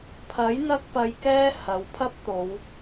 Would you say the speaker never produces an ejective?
yes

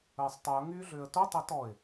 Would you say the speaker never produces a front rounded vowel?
no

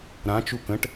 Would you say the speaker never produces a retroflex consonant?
no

